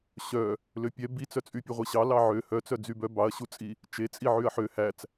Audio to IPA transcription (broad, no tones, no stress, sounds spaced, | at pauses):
ɕ œ | l ø pʲ ɛ b i t͡s œ t͡sʼ y pʲ u ʁʷ i ɕ ɑ l ɑ ʕ ø h œ t͡s œ d͡z y b œ b ɑ ɐ̯ ɕ u t͡sʼ i | t͡ʃ e t͡sʼ i ʕ y ɐ̯ ħ ø h æ t͡s